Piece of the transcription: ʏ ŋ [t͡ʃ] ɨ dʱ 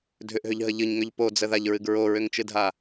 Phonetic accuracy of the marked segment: correct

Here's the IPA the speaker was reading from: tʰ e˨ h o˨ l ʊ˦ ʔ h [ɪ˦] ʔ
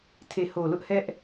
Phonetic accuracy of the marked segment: incorrect: ɛ˦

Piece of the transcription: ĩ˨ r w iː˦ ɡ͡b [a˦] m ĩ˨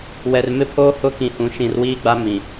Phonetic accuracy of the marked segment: correct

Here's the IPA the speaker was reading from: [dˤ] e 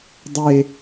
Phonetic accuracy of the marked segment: correct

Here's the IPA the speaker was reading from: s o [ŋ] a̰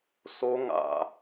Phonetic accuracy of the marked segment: correct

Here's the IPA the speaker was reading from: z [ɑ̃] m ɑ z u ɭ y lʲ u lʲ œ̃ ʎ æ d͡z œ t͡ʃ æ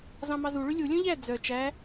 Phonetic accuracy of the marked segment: correct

